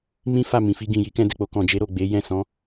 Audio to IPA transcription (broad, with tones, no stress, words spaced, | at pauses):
mĩ˦ fa˦˨ mĩ˨fi˧ ɡĩ˨ ji˨˦kɛ̃˧dɛ˨k͡po˧ kɔ̃˨d͡ʒe˨˦ ɾo˦˨ɡ͡be˨˦ jɛ̃˦˨sɔ̃˨˦